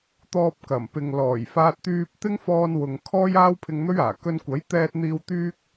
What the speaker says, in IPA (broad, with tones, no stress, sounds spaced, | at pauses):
t̪ ɔː˧ p̚ k ɐ˨˩ m p ɪ˨ ŋ l ɔː˨˩ j f aː˧ t̚ t̪ yː˧ p̚ t̪ ɪ˥ ŋ f ɔː˧ n w ʊ˨ ŋ kʰ ɔː˥ j aː˥ w pʰ ɪ˧ ŋ n̪ ɵ˥ ɥ aː˨˩ k ɵ˧ n kʷ ɐ˨˥ j t̪ ɛː˧ t̚ n̪ iː˧ w t̪ yː˥ k̚